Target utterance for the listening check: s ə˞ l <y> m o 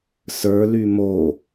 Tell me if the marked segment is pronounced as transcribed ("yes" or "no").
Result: yes